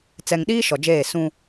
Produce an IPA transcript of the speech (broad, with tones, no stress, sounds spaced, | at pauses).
t͡s ɛ˨ ŋ ɗ iː˦ ʃ ɔ˨ d͡ʒ eː˦˨ s ũ˦